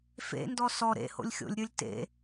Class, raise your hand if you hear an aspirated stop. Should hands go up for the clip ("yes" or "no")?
no